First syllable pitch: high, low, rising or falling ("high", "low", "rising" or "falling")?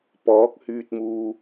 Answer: rising